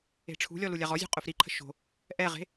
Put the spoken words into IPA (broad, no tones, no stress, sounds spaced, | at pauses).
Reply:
e̤ ʈ͡ʂʰ ṳ lʲ ɔ l u lʲ a ʁ ɔ zʲ ṳ qʼ ʊ f ɾ i ǃʰ ə̤ ʃ o̤ | ʔ ɛ ʁ e̤